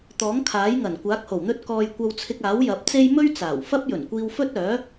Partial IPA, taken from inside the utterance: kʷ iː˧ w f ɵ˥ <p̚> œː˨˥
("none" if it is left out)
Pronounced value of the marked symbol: t̚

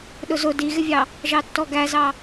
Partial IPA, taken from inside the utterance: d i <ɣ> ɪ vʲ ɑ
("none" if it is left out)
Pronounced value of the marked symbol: ɣ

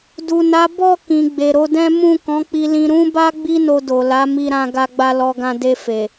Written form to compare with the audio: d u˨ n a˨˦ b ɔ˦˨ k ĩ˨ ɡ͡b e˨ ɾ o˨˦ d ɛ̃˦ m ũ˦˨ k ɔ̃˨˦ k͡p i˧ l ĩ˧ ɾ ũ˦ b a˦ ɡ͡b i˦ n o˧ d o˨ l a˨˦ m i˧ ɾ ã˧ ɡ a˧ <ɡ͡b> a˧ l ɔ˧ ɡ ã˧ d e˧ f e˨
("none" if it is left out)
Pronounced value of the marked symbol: ɡ͡b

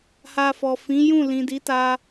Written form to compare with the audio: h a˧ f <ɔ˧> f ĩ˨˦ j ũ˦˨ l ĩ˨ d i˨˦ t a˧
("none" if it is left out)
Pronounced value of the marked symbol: ɔ˨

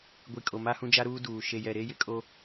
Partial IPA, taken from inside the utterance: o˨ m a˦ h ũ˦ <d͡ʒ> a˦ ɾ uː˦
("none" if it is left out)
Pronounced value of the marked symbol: d͡ʒ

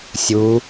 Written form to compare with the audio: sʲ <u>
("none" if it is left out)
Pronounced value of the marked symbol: u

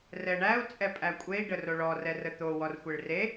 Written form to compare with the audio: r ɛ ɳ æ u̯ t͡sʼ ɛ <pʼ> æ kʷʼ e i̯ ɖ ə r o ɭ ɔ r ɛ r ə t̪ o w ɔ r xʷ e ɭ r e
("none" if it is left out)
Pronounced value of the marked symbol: pʼ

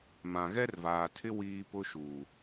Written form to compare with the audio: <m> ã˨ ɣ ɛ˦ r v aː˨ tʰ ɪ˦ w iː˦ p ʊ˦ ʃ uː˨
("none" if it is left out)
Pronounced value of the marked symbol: m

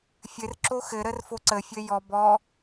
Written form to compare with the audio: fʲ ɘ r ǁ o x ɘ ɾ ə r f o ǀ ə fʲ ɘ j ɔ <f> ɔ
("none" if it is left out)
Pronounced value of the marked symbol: b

